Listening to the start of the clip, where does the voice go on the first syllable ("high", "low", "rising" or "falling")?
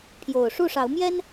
low